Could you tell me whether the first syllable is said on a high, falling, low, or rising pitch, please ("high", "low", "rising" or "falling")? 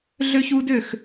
high